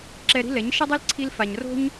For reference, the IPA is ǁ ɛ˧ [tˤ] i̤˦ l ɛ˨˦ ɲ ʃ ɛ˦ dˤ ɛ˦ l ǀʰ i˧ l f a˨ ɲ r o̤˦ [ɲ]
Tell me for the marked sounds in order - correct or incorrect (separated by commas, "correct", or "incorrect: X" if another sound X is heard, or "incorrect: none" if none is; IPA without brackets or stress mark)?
incorrect: ɾ, correct